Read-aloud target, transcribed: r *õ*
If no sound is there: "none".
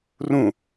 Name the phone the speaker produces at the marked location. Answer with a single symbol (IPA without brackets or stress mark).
ũ